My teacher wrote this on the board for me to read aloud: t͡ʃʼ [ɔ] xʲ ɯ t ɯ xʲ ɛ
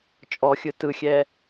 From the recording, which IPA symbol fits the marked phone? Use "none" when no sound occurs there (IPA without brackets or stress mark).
ɔ